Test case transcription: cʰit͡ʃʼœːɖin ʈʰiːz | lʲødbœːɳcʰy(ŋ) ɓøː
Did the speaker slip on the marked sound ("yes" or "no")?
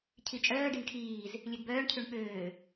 yes